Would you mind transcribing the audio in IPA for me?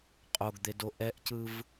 qʼ o ɡ d̪ e d o ʔ ɛ ʔ c ɯ v

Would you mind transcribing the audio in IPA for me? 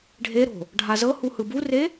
ɖʱ e ɾ o̤ | ɖʱ a z ɤ h u h ɯ b u r e

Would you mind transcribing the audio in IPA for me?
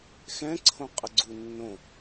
x ɛ̃ ǀʰ õ qʼ ə ɡ͡ǀ u nː õ

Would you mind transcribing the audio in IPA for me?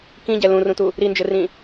k ĩ ɟ ɛ l ũ r ũ t u | ɾ i n d͡ʒ ɘ r ĩ

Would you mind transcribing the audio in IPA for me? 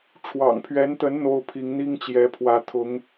ʈ͡ʂʰ w ɑ̰˨˩ ŋ pʰ ɥ ɛ˧˥ n t̪ ə˧˥ n n̪ o˥ ʊ̯ pʰ i˧˥ ŋ n̪ i˥ ŋ t͡ɕ j ɛ˧˥ pʰ w ä˧˥ t̪ʰ ʊ˧˥ ŋ

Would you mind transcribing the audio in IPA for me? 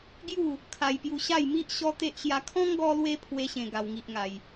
ɡ j u˥˧ | kʰ a˧ j p j u˧ ɕ a˥˧ j m i˦ ʔ ɕ ɔ˦ t̪ e˦ ʔ ɕ j a˧ kʰ ɔ̃˦ ŋ ɡ ɔ˧ l w e˧ pʰ w e˦ ɕ ẽ˧ ɡ a˧ w ŋ i˦ ʔ ŋ a˧ j

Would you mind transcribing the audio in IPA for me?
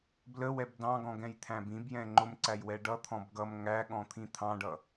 b l ə w ɛ b d ɑ̃ ɡ ɔ̃ ɡ ɛ̃ j t̪ʰ æ̃ b ĩ b j ɛ̃ ŋ͡ǃ ʊ m ǀ æ j w ɛ ɖ ʌ t̪ʰ ɔ̃ b ɡ ʌ m ŋ æ ɠ ɔ̃ t̪ʰ ĩ t̪ʰ ɑ̃ ɖ ʌ

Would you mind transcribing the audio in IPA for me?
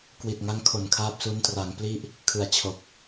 k w i˨˩ t̚ ŋ a˦˥ ŋ kʰ o˨˩ n kʰ aː˦˥ p̚ s u˦˥ n t r a˩˦ ŋ p l i˦˥ ʔ | kʰ ɯ˩˦ a̯ t͡ɕʰ o˨˩ k̚

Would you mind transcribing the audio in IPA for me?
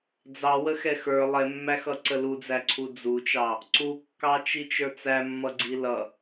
d͡z ɑ w ə x ɛ x ə˞ lˠ ɛ mː æ x ʌ ǀ ə l u d͡z æ ǀʰ u d͡z u t͡ʃ ɑ | ǀ u kː ɑ t͡ʃ i t͡ʃ ə˞ t͡s æ mː ʌ ɡ͡ǀ i l ʌ

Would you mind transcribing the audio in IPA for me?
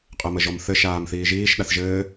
qʼ ə m ə ʒ ɔ m θ ɘ ʃ aː m θ iː ʒ iː ʃ ɗ a θ ʒ ɘː

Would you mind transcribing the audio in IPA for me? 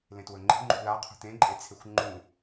l ẽ t w ɵ ŋ͡ǃ e̤ ŋ͡ǃ ṳ l a qʰ ṳ t̪ ẽ ǃʼ e t͡sʰ e xʷ ŋ͡ǃ ũ

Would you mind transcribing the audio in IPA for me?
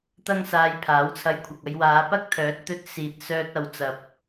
t̪ ɐ˥ ŋ s aː˧ j pʰ aː˨˥ w t͡sʰ ɐ˧ j kʷʰ ɐ˨ k̚ ɐ˧ j w aː˨˧ p ɐ˥ k̚ t̪ʰ œː˨˥ t̚ t̪ ɵ˧ t̚ s iː˨ t̚ s œː˧ t̚ ɐ˨ w t͡s ɐ˨ p̚

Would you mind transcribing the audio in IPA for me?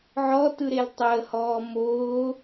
ʕ ɔ t ɯ ɾ e l tˤ əː h ɔː m oː

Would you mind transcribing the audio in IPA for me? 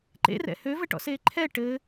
ǃ ḛ r ɛ̰ h ø v ɘ ʈ ɔ̰ s eː ǃʰ ɛ ʈ ɘ

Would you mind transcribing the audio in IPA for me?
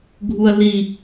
ɡʱ u ɐ̯ l i

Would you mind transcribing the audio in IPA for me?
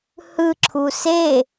h ɯ ǁʰ u s e

